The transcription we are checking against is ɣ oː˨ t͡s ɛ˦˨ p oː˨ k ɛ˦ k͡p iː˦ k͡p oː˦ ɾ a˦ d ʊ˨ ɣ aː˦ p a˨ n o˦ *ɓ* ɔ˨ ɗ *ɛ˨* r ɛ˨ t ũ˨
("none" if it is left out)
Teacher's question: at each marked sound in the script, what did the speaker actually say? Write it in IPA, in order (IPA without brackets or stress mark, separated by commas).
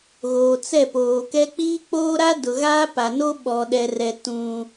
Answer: ɓ, ɛ˨